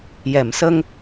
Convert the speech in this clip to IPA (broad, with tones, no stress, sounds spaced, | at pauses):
j ɛ˨˩˨ m s ə˧ ŋ